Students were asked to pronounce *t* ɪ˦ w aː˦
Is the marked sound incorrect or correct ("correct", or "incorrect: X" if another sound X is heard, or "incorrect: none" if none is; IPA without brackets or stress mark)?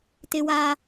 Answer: correct